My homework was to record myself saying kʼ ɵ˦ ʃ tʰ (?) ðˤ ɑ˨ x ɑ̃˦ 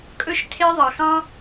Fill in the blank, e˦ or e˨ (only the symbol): e˦